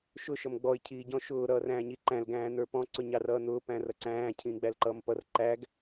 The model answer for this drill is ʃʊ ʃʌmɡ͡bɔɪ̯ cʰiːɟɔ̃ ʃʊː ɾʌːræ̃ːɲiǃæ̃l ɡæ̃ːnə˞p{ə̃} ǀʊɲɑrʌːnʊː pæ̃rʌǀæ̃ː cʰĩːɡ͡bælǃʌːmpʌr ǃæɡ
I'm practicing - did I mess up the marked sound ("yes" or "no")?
yes